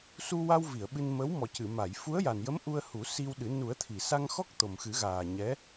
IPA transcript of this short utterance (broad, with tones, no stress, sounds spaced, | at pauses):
s u˧ w a˧ w v i˨˩˨ ə̯ ɓ ɨ˧ n m ə˧˥ w m ɔ˨˩ c ɨ˨˩˨ m a˨˩˨ j f u˧˥ ə̯ j a˨˩ n j ə˧˥ m ʔ u˧ ə̯ h u˨˩˦ s i˧ w ɗ ɨ˨˩˦ n u˨˩˦ ə̯ t̪ʰ i˨˩˨ s a˧ ŋ x ɔ˦˥ k̚ t̪ o˨˩ m x ɨ˨˩˦ ɣ aː˨˩ ɲ ɛ˧˥